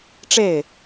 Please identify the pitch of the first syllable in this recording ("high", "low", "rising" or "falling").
falling